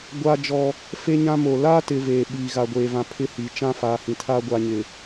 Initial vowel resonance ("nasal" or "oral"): oral